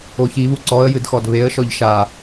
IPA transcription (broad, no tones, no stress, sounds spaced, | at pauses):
o ç i β u ǀ ɔ ə̯ j ɨ d x ɔ d β e ə̯ ʃ ɔ ʎ ʃ a